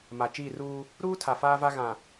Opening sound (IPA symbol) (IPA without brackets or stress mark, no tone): m